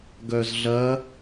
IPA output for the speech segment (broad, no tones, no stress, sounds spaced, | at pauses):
ɡ œ z ɮ ɐ